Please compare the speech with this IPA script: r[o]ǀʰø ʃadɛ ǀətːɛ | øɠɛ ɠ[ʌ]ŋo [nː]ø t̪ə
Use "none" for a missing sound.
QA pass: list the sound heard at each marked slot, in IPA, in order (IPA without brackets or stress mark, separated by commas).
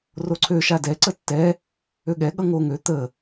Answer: o, ʌ, ŋ